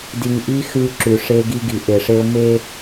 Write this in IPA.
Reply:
d i˨ ŋ ʔ i˦ x ʉ˦ ǁ ʉ˨ ʂ e˦ ɡ i˦ ɡ i˨ ʔ e˨ ʂ e˦ ʊ̯ m e˦

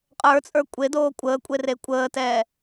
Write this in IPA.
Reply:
qʼ ə˞ t͡sʼ ə˞ kʷʼ e d oː kʷʼ əː kʷʼ e r e kʷʼ əː t ɛː

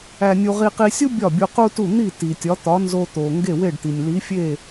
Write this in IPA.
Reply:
æ˧ nʲ u˧ ʁ i˧ q i˧ sʲ u˥ bʲ ɒ˥˩ bʲ u˧ q u˥ t u˥˩ n̪ i˥˩ t i˩ tʲ ɒ˩˥ t̪ ɒ˩˥ n z o˧ t̪ o˩ ŋ ɡ e˥˩ w e˥˩ ɖ t̪ i˩ nʲ l i˩˥ fʲ e˥˩

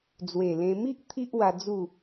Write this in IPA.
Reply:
d͡z w e˨˩ l ẽ˧ m i˦ ʔ t̪ʰ i˦ ʔ w a˧ d͡z u˥˧

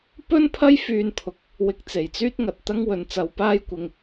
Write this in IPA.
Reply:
p ɵ˥ n pʰ ɐ˥ j f yː˧ n pʰ ʊ˨˥ k̚ | w ɪ˧ k̚ t͡s e˨˩ j t͡s yː˥ t̚ ŋ ɐ˨ t̚ t̪ ɐ˥ ŋ w ɵ˨˧ n t͡s ɐ˧ w p aː˥ j kʷ ɪ˧ ŋ

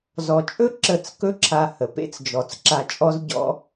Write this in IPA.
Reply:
z ɔ˨ t͡ʃʼ ɵ˦ ǁ ə˦˨ t͡s k ɵ˦ ǁʰ a˧ h ə˨ p ḛ˦ t͡s d͡ʒ ɔ˨ t͡s ǁ a˧ t͡ʃʼ ɔ˦ z ɟ ɔ̰˦

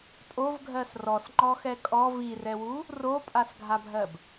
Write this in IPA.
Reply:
tʼ o v ɡʱ ɜ s r ɔ s ŋ͡ǃ ɔ x ɛ kʼ ɔ v i r ɛ w u | r o pʼ a s ɡʱ a bʱ ɜ b

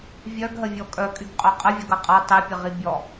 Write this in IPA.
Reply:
vʲ œ ɡ ɦ ə vʲ ɔ kʼ œ kʼ y ɡ qʼ œ qʼ ə vʲ ʌ ɡ ʌ qʼ ʌ tˤ e pʲ ə ʁ i bʲ ɔ

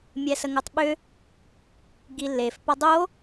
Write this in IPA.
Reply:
mʲ ɛ s ə ŋ o tˤ ɓ ʏ | ɡ i lː e f p ʌ dˤ o

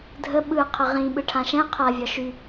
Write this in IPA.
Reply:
dʱ ə ɓ ɯ qʰ ə ʁ ĩ ɓ ɯ ʈʰ ã ʃ ɛ̃ qʰ a vʲ ɒ ʃ y

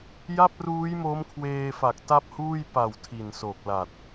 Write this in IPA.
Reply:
j a˥˩ p̚ r uː˦˥ j m o˦˥ m kʰ w eː˧ f a˨˩ k̚ t a˦˥ p̚ h uː˥˩ j p a˨˩ w tʰ i˨˩ n s o˨˩ k̚ l a˨˩ t̚

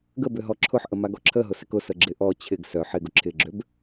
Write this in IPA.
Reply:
ɡ ə b ʏ ɦ ɔ ǁʰ ʊ ħ ʔ ə m a ɡ ɔ ǁʰ ə ɦ ʊ s ɪ k ʊ s ə ɡ͡ǁ ɪ ʔ ɔ t͡ɕʰ ɪ ɡ s œ ħ ɪ ɡ ʊ ǁʰ ɪ ɡ͡ǁ ø b

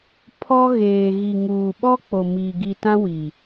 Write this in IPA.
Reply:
pʰ ɔ˦ ɣ eː˨ ɣ i˨ ŋ uː˨ ɓ ɔ˦ k͡p o˨ m iː˨ ɡ i˨ t ã˦ w i˨

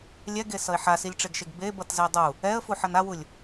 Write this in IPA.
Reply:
lʲ ɛ ɡ e s ʌ ɪ̯ ħ a s i lʲ ʈ͡ʂ e ɡ ʃ e ɡ b e b ʌ t z e dˤ u | ɛ ə̯ f u ħ ʌ n a w u lʲ

